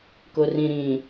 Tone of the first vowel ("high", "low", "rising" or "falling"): low